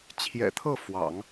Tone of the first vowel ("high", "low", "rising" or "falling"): low